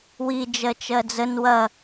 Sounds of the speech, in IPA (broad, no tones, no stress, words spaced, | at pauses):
wi d͡ʒɜt͡ʃɜd͡zən wɐ